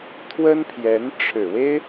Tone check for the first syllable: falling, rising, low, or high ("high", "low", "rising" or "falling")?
high